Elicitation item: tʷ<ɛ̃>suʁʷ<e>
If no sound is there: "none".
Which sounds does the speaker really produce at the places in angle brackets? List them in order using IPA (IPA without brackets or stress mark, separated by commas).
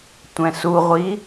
ɛ̃, i